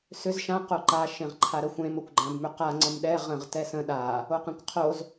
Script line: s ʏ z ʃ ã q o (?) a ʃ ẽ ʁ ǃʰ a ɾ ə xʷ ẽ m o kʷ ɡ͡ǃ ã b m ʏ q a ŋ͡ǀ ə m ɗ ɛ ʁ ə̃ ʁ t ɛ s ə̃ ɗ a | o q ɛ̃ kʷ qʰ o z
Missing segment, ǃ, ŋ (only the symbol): ǃ